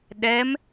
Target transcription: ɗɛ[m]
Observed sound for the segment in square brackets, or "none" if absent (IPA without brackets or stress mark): m